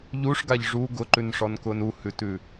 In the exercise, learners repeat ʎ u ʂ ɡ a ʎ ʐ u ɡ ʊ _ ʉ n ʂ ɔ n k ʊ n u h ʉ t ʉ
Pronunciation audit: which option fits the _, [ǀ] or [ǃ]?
ǃ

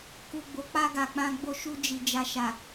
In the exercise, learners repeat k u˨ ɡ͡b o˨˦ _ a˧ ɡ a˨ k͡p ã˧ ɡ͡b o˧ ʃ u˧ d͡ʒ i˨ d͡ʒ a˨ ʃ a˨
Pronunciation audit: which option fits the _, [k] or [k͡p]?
k͡p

